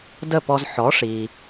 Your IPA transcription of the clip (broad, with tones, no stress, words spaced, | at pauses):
də˥˩pɔ˧z ħɔ˩˥ʂi˩